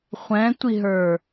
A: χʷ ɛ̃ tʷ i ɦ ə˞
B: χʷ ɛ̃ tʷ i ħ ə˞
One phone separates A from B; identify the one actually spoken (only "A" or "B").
A